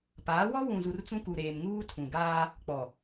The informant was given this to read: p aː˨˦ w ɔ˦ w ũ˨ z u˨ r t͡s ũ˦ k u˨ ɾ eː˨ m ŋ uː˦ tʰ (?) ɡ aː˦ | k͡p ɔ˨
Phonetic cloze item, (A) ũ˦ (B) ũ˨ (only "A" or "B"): B